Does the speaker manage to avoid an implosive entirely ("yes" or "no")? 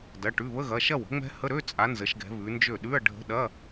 no